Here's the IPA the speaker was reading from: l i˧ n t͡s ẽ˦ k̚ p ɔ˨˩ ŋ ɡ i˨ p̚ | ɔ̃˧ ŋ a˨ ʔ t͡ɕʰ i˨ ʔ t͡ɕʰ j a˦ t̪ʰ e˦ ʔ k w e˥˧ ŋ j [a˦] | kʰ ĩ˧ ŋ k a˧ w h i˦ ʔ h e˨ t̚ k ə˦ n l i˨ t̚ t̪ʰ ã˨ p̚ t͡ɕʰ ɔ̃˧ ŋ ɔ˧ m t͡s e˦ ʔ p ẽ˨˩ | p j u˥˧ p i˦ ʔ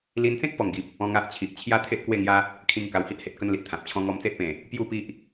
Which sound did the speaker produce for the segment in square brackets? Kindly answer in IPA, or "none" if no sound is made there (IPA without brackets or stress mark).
a˦